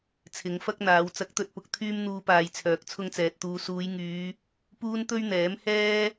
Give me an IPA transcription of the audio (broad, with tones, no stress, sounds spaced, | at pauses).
t͡sʰ ɪ˨˧ ŋ f ɐ˥ k̚ n̪ aː˨˧ w t͡s ɐ˨˥ k̚ t̪ ɵ˨ t̚ p ʊ˨ k̚ t̪ʰ yː˥ m n̪ uː˧ p aː˨ j t͡sʰ œː˨ k̚ t͡sʰ ʊ˥ ŋ t͡s ɛː˨ t̚ t̪ uː˧ s uː˨˧ j ŋ yː˨˧ | p uː˥ n t̪ ɵ˥ ɥ n̪ ɛː˨˥ m h ɛː˥